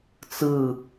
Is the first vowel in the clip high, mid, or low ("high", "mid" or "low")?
high